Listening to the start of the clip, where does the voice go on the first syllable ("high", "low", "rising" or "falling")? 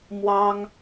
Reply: high